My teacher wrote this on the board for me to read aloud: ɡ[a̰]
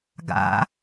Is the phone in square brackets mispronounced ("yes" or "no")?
no